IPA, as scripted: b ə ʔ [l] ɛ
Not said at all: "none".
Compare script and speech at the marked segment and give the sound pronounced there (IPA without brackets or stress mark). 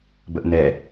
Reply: n